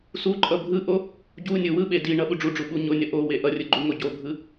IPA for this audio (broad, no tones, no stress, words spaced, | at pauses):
suǃʼʌ bʱɯʔo | ɟu nʲɯwɯɓe diɳʌ ɓuɖ͡ʐuɖ͡ʐu ɓuɲonʲʌ ʔowe ʔʌrʲɯ ɡ͡ǃuŋoɟobʱɯ